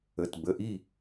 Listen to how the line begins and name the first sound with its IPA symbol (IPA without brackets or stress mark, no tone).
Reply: ə